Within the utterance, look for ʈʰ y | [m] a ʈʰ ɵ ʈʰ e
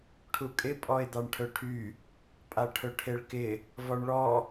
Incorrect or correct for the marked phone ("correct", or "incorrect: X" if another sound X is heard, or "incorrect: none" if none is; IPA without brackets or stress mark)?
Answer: incorrect: pʼ